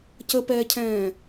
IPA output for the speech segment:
c ə p ɛː cʰ ɛ̃ː

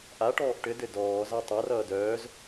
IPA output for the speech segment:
ʔ a ʈ ɔː ʔ ʈ ɘ d ɘ d ɔː z a tˤ a r ʌː d œː z

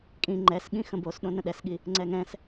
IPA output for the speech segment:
kʼ ĩ ŋ͡ǃ ɛ s ɠ ĩ x ə̃ b o s ɗ õ n ə̃ ɗ ɛ s ɠ i | ŋ͡ǀ ɛ ŋ ɛ̃ s

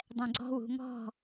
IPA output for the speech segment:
dˤ ɛ̃ ɡ͡ǀ ɔ̤ w ṳ ŋ ɔ̤

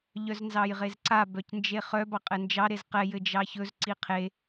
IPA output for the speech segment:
ʎ œ z n z ɑ j ʁ e z ǀ a b œ c n d͡ʒ e χ œ b ɑ qʼ ɘ n d͡ʒ ɑ ɾ e z q ɛ j ɘ d͡ʒ ɑ ç ɵ z ǀ i qʰ e

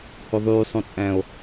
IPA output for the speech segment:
h o ðˤ yː sˤ õ t͡sʼ æ̃ o̯

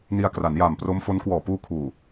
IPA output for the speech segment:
n i˧ a̯ k r a˩˦ n j aː˨˩ m p r o˦˥ m f o˦˥ n k w ɔː˨˩ p uː˧ kʰ uː˨˩

